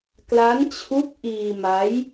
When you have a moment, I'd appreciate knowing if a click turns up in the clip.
no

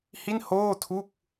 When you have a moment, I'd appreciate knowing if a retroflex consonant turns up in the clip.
no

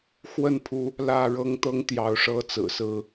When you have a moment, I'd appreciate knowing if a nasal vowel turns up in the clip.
no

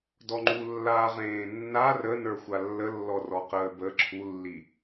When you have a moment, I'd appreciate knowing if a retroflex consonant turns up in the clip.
no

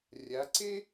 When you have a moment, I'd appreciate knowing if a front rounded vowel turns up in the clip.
no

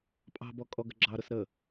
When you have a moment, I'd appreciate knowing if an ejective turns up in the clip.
yes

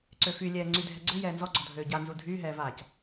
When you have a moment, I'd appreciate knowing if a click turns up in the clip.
yes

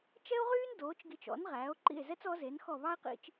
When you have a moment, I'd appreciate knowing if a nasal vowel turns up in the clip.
no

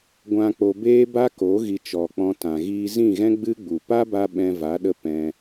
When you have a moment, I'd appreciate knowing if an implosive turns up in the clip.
yes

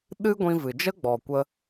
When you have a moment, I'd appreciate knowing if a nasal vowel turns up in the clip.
yes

